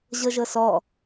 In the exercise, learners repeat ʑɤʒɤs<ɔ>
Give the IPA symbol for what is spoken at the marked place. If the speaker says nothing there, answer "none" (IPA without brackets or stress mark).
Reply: ɔ